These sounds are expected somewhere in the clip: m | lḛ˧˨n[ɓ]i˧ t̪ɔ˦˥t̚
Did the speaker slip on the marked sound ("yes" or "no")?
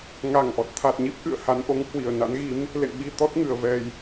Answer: no